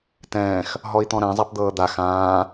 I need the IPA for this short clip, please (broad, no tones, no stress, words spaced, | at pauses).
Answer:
tɛ̃ːx | ɦɔi̯t̪ɔ̃ɾɛ̃ zˤapd̪ɤːd̪a xãː